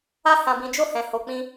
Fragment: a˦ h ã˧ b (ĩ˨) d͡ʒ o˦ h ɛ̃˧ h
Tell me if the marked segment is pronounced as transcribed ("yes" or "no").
no